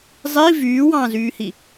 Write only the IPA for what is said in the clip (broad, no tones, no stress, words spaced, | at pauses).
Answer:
zˤi vyːwɑ̃ːzyːhi